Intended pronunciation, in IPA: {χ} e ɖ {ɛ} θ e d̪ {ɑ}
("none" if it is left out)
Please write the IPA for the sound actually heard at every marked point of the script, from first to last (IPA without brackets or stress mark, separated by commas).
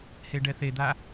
h, ɛ, a